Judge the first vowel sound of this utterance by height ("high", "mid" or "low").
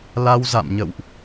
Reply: low